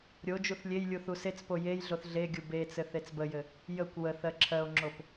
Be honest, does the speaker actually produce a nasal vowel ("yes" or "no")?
no